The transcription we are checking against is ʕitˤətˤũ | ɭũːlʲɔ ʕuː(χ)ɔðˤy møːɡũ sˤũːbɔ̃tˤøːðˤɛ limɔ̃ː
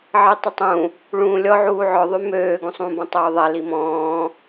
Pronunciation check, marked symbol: incorrect: ʕ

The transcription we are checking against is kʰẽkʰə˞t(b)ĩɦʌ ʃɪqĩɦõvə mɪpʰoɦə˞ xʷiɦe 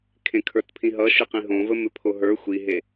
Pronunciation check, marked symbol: incorrect: pʰ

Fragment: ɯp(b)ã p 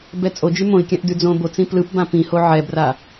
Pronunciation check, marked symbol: correct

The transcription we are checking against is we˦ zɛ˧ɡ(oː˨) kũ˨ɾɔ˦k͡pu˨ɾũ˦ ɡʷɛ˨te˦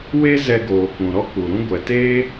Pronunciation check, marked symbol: correct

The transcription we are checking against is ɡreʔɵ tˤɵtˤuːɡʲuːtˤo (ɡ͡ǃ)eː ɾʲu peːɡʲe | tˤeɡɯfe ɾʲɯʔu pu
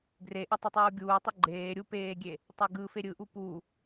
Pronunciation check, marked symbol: correct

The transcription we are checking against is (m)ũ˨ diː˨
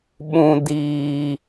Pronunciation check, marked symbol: incorrect: ɓ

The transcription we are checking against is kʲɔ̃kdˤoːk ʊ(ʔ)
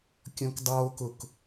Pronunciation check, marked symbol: incorrect: k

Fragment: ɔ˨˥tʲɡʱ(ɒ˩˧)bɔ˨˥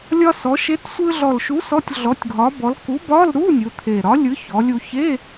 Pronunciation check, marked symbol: incorrect: ɒ˨˥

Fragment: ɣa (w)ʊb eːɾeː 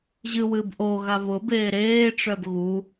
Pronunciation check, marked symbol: incorrect: β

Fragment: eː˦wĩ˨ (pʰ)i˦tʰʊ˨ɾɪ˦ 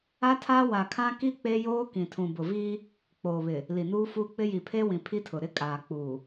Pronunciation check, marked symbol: correct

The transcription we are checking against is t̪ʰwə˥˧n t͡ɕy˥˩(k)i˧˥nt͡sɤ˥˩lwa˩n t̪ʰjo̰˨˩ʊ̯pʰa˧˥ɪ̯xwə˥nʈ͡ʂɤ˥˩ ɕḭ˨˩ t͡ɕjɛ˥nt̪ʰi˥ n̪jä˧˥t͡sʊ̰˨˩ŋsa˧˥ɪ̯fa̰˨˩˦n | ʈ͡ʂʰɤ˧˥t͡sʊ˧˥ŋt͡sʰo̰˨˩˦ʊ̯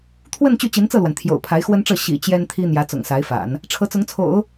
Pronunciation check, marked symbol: incorrect: t͡ɕ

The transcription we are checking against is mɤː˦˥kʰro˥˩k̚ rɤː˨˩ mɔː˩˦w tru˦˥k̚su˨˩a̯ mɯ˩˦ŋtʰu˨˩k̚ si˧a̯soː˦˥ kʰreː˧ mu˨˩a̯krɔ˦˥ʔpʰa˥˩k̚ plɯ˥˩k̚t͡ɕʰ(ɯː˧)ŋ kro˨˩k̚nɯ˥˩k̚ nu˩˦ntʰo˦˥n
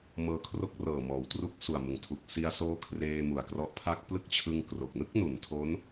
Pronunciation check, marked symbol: incorrect: ɯ˧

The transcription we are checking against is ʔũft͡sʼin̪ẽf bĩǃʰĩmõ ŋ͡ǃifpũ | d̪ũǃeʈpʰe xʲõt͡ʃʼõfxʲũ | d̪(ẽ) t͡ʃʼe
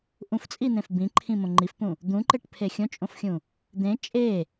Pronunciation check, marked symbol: correct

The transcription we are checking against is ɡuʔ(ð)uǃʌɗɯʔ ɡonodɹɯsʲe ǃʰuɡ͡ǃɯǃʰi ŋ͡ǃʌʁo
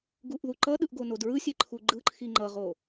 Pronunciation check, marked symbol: correct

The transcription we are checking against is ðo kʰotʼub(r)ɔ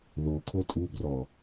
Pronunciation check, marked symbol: correct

